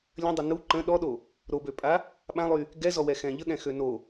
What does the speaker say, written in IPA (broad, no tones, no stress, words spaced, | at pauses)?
lʲə̃dˤə nu ǃə̃ ɗɔɗo | ɾobøpʼa | ɓãlˠy | ɡɛzɔwɛxɛ̃ ʎəɠɛ̃xø no